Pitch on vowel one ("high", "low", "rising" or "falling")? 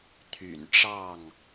low